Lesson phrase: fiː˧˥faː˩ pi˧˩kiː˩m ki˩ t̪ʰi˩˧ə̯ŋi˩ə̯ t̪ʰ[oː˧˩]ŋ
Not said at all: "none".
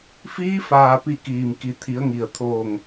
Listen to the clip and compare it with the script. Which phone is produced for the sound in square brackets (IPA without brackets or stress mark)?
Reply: oː˧˩